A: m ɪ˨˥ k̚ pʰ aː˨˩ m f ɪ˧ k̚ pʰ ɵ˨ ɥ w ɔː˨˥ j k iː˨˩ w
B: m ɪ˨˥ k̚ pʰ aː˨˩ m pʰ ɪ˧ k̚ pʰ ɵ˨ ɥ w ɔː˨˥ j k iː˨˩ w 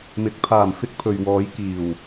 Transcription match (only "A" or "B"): A